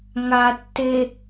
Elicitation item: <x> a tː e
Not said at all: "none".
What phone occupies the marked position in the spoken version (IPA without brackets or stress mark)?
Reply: ŋ